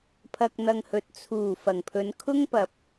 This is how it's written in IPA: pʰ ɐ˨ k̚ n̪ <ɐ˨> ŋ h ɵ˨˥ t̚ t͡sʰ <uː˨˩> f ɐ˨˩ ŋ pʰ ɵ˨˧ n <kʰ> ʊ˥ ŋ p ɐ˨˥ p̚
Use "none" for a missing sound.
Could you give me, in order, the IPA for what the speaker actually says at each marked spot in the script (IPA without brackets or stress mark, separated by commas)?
ɐ˨, uː˨˩, kʰ